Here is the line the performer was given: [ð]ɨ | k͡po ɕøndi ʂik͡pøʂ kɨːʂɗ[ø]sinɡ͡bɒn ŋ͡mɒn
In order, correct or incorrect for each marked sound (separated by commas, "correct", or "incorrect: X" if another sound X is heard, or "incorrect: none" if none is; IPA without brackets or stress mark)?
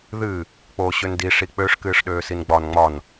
correct, incorrect: øː